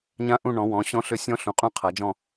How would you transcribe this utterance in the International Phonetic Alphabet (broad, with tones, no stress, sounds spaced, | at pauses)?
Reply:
ɲ ã˦˥ ʔ ũ˦˨ ɳ ɔ̃˩˧ w ɔ̃˩˧ ɕ ɔ̃˦˥ ɬ ʏ˦˨ sʲ ɔ̃˦˥ ɬ ũ˩˧ qʼ ũ˦˨ qʰ a˩˧ d͡ʒ ɔ̃˦˨